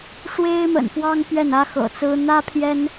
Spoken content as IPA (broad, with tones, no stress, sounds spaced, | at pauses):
ʂ w e˦ ɪ̯ m ə̰˨˩ n f w ɑ˦ ŋ p ɥ ɛ˥˨ n ä˦ x ɤ̰˨˩ t͡s ɹ̩˦ n̪ ä˦ pʰ j ɛ˦ n